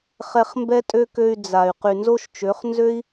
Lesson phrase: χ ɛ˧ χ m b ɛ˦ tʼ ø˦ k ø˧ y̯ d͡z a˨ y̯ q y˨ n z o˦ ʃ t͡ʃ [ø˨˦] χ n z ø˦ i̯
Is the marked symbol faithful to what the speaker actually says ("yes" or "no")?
yes